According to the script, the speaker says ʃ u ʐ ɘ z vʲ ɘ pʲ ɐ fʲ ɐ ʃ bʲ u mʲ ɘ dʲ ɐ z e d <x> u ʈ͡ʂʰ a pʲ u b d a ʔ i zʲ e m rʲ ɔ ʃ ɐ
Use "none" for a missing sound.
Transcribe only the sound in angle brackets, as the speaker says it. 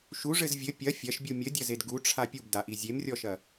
ɡ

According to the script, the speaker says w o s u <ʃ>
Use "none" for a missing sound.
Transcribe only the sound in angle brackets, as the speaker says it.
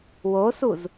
z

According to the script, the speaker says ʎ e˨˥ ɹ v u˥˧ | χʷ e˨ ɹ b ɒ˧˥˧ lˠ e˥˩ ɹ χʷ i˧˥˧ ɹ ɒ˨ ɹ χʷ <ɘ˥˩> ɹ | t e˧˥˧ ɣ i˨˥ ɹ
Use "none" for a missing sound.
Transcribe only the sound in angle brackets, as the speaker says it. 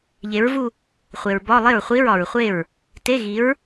e˥˩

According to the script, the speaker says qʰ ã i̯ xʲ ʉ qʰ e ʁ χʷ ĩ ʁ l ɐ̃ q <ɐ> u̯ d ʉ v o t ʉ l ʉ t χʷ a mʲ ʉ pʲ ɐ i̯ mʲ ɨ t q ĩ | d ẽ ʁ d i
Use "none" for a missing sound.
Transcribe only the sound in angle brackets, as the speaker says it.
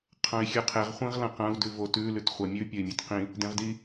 ɐ̃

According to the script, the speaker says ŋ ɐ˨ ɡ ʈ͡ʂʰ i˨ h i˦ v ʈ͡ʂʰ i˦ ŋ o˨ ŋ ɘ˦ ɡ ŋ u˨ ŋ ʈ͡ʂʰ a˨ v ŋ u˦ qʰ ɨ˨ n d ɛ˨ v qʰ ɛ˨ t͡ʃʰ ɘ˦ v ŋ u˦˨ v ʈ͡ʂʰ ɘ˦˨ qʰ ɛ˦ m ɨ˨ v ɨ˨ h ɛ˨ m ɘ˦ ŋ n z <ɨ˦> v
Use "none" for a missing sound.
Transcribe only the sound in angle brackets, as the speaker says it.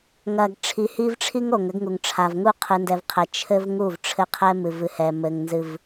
ɨ˦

